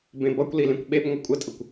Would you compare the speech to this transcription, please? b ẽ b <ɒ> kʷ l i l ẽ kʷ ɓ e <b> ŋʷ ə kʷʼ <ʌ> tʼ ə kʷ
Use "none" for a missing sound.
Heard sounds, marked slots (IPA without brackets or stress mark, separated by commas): ʌ, b, ə